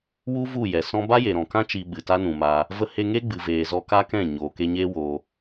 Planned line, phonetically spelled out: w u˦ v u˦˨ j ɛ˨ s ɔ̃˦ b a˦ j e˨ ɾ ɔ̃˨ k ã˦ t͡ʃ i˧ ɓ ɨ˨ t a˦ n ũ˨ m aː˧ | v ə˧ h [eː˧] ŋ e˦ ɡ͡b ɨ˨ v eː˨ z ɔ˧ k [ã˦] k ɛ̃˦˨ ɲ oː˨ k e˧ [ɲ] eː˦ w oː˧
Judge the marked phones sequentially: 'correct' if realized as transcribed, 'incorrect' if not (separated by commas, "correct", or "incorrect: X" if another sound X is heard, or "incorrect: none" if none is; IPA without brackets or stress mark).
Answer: incorrect: e˧, incorrect: a˦, correct